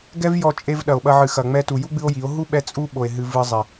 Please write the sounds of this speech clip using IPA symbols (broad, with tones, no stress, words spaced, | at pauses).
ɡɛ˦vjɔ˧ t͡ʃʼe˧v ɗɐ˨o̯ɓɐ˧ ʕɨ˨xɐ˨ ŋ͡mɛ˧tu˨ju˦ ɡ͡bɨ˦o̯ji˨˦o̯ ɦu˦ɓɛ˧ t͡sʼu˦ɓo˨e̯ ɦɨ˧vɨ˧zˤi˨